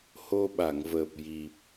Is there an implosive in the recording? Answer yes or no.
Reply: yes